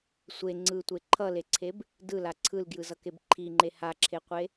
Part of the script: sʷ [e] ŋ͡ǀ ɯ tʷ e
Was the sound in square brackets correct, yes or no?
yes